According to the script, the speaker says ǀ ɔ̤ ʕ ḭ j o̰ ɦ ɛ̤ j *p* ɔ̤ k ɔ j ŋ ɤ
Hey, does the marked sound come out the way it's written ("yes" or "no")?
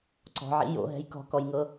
no